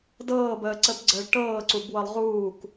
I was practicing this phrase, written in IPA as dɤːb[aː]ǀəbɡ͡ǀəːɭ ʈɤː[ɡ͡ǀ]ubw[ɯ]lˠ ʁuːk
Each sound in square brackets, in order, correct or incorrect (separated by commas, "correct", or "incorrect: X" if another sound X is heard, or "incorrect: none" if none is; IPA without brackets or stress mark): incorrect: əː, incorrect: ǀ, incorrect: ɤ